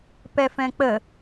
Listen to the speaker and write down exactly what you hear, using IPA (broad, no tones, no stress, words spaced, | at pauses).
pɛfɛ̃k͡pə